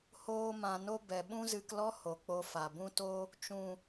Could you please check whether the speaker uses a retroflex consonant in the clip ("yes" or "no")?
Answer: no